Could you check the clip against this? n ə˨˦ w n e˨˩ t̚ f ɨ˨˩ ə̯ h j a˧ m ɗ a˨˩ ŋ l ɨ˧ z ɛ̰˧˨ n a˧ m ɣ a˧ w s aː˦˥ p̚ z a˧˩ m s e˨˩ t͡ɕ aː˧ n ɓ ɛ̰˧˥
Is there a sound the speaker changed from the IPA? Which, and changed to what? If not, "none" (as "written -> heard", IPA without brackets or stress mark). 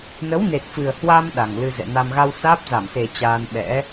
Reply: j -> w